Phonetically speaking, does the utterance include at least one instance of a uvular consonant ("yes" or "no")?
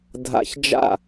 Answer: no